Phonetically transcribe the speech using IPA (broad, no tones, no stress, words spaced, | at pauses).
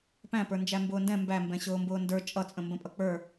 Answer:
pæ̃ pə˞nd͡ʒæmbʊːndɛ̃ mbæmbɛ̃ ɕʊːmbʊːndə˞ t͡ʃʼʌt͡sʼə̃ mbə̃pʼʌk͡pə˞